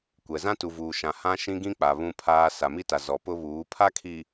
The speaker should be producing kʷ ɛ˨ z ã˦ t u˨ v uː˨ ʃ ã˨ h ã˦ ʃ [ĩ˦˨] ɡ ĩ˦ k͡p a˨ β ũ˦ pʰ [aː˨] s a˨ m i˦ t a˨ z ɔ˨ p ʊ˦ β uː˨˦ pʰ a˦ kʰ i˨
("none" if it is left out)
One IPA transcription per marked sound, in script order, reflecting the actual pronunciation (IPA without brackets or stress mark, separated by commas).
ĩ˦, aː˦